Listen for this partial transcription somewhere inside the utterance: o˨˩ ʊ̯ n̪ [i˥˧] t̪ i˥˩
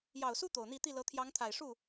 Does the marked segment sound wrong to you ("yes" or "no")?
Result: no